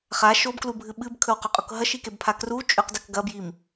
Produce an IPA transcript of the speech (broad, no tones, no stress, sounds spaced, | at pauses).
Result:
χ a ʃ o b k l u bʱ ɨ ɓ ɨ b kʰ ɵ w q u qʼ o k ɦ ɐ ʃ i k e b pʰ a k r u t͡ʃʼ ʉ q d ɐ k ɡ ɐ b j i m